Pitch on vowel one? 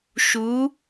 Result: rising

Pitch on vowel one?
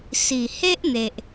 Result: low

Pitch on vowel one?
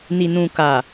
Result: low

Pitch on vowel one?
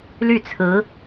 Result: falling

